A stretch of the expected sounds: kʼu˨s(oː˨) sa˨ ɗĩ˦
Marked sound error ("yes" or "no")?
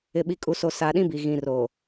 yes